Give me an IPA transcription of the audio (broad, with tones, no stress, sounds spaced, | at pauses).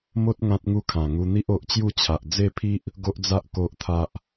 m o˦ t̚ ŋ ã˦ t̚ ŋ u˦ kʰ ã˨˩ ŋ u˧ n̪ i˦ ʔ o˨ ʔ t͡ɕ j u˥˧ t͡ɕʰ a˨ ʔ d͡z e˥˧ pʰ i˦ ʔ | ɡ o˦ ʔ d͡z a˦ ʔ k o˦ ʔ t̪ʰ a˦ ʔ